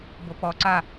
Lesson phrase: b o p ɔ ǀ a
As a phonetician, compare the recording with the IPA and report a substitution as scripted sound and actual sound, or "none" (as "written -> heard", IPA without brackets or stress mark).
none